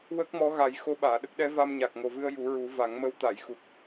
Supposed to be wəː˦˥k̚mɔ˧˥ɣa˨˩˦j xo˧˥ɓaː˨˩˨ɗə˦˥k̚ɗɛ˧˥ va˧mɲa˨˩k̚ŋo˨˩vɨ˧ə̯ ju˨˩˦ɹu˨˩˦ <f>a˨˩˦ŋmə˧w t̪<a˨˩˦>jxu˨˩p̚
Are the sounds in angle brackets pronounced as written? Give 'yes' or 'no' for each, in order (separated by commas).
no, no